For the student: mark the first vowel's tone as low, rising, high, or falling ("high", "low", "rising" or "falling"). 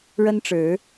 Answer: high